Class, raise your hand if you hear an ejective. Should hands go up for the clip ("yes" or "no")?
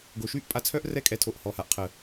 yes